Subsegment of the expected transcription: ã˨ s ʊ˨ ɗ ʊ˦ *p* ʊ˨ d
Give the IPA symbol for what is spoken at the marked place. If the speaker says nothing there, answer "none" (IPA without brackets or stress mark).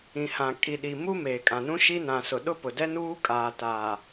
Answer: p